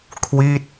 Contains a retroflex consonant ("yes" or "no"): no